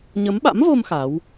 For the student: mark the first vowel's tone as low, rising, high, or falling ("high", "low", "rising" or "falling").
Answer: rising